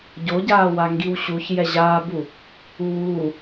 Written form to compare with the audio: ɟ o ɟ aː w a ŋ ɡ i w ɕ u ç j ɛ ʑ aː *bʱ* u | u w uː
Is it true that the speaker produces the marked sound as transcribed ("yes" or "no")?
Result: no